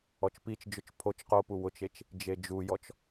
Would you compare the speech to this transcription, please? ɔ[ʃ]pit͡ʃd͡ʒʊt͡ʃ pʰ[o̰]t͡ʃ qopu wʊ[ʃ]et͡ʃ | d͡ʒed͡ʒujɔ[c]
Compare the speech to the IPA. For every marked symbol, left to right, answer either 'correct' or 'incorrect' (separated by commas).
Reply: incorrect, incorrect, incorrect, incorrect